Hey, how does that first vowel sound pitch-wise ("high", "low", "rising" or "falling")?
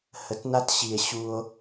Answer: low